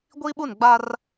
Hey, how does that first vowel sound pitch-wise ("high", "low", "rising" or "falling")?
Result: high